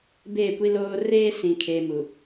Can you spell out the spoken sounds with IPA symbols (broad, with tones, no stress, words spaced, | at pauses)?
beː˦˨kʷi˦loː˦ reː˦sĩ˨ kʰeː˦mu˨